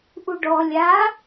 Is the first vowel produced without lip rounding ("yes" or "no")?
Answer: no